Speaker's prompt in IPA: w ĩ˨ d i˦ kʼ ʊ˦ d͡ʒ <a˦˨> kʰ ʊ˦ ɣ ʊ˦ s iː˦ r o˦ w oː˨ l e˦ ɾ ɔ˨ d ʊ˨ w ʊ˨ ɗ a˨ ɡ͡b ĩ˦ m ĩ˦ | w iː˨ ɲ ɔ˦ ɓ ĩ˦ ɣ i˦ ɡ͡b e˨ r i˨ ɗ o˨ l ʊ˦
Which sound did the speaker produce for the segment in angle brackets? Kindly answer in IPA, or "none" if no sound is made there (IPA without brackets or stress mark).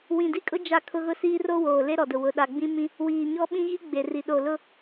a˦˨